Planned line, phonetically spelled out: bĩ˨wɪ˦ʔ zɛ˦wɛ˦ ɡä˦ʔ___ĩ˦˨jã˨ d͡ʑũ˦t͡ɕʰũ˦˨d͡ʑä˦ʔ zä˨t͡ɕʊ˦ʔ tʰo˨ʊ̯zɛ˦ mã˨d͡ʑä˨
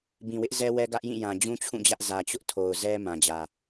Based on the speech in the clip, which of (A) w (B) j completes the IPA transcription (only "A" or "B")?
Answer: B